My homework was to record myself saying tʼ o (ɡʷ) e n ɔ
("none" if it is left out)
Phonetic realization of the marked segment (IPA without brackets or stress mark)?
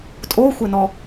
xʷ